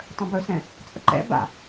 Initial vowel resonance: nasal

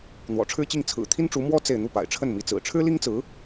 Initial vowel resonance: oral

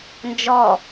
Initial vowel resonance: oral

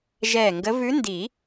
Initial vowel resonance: oral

